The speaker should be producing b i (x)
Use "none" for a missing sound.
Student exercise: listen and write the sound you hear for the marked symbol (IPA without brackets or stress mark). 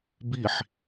ħ